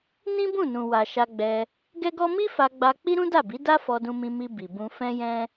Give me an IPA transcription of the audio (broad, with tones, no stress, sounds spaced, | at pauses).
n ĩ˦ b ũ˦˨ n ũ˨ w a˨ ʃ a˧ ɡ͡b ɛ˧ | ɡ ɛ˦ ɡ ɔ˦ m i˦ f a˧ ɡ͡b a˧ k͡p i˦ ɾ ũ˦ d a˦˨ b i˨˦ d a˦ f ɔ˧ d ũ˧ m ĩ˧ m i˧ b i˨ b ũ˧ f ɛ̃˦ j ɛ̃˦